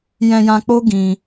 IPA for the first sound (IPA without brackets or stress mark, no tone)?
j